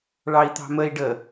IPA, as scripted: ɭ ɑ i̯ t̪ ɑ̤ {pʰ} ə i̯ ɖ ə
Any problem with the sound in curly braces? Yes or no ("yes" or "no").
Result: yes